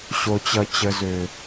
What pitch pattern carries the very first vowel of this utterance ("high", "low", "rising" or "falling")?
low